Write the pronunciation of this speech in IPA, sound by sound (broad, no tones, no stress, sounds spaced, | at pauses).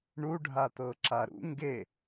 ɳ u ɖʱ a t̪ ɤ ǁ a ɾ ṵ ŋ ɡ e